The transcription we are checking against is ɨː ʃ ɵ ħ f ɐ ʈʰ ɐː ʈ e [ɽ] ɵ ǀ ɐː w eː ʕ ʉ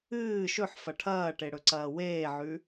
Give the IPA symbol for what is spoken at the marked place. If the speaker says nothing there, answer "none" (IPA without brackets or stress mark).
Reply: ɽ